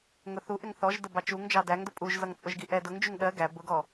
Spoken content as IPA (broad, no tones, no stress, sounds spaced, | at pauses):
ŋ ʊ θ u ʔ ɪ ŋ θ ɔ ʒ d ə b ɑ t͡ʃ u ŋ d͡ʒ ɑ d æ ŋ d ʊ pʼ u ʒ z ʌ ŋ t͡sʼ ʊ ʒ ɡ i ʔ ɛ d ʊ ŋ d͡ʒ u ŋ ɗ ɜ ɡ æ b ʊ ɡ ɔ